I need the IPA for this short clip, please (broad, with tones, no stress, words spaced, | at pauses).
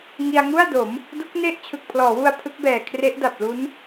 ŋi˧a̯ŋu˥˩a̯do˩˦m | du˦˥k̚ ne˥˩ʔ t͡ɕʰɯ˨˩k̚pʰlɔː˩˦wu˧a̯ pʰɯ˦˥k̚bɛː˨˩ kʰre˦˥ʔda˨˩p̚ lu˦˥n